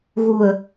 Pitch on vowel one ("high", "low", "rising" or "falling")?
low